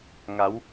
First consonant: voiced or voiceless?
voiced